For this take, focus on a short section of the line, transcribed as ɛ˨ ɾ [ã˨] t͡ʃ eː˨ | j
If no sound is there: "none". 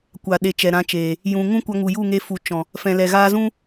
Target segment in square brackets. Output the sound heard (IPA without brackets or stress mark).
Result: ã˧